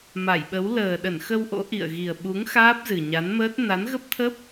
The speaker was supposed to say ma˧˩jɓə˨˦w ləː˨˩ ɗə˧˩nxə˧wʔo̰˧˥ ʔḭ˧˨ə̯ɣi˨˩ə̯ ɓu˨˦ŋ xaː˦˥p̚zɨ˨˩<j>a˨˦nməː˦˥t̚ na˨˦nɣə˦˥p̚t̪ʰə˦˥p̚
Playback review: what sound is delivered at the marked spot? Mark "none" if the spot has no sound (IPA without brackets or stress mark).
ɲ